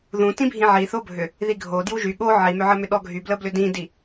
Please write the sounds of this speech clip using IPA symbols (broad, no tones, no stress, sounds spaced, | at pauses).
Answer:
ð ũ t ĩ bʱ ĩ ʕ i θ o bʱ ʏ | ð i ɡʱ o d j u ʒ y ɠ o ʕ i m ʏ ʕ ə m ʏ ɗ ɔ ɡʱ y b l ə b l ʏ d ĩ d i